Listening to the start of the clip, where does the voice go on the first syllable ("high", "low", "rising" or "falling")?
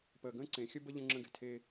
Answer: low